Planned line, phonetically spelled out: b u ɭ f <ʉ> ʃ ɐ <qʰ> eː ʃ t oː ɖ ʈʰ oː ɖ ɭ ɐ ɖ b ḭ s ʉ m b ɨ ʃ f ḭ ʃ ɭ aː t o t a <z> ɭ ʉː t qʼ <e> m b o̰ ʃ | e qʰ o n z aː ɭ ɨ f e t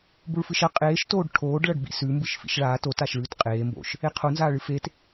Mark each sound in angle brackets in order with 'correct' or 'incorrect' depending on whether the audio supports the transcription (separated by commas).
incorrect, incorrect, incorrect, incorrect